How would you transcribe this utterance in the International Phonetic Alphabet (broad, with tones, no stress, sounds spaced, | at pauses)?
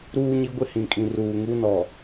ɾ uː˦ ɲ i˦ ɡʷ ɪ˦ h ĩ˨ kʼ ĩ˨ r uː˨ ŋ u˦ n ɔ˨